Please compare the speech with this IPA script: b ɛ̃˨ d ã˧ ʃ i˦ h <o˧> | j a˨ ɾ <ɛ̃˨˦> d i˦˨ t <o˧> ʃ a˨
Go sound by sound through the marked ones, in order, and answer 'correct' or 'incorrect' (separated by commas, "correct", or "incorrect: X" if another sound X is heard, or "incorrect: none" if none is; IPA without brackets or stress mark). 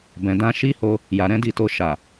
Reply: correct, correct, correct